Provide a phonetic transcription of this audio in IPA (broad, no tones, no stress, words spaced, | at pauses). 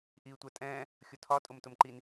ʔiːtʷɜtʼɛ̃ː | xʲʊtʰɒ tʼʊmtʊmǃin